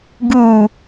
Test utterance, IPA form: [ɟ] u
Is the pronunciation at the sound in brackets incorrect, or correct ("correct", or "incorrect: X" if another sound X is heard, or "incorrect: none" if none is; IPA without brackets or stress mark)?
incorrect: ɡ